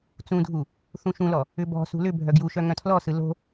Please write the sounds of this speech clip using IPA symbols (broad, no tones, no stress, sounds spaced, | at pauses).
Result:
t͡s ũ dʱ u | θ ũ ʃ ũ l ɔ | ʏ b ɔ̤ s ṳ l ʏ bʱ œ ɡ j u ʃ œ ŋ œ̃ tʰ l ɔ s ɯ l o̤